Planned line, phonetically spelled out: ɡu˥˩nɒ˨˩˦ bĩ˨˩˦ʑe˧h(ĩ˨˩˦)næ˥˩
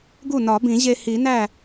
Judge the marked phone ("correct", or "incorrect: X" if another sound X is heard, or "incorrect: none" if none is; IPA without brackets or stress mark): incorrect: i˨˩˦